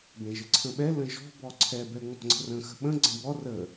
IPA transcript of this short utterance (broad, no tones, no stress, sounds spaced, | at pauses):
b ɛ̃ ʒ ə ǀʰ ə̃ ɓ ɛ l ə̃ ʒ ɔ̤ b ɔ ǀʰ ɛ b ɛ ŋ͡m ɔ̤ ŋ͡ǀ ə̤ r ə̃ x ə̤ ɓ ə̃ ɡ͡ǀ ə̃ b ɔ r ə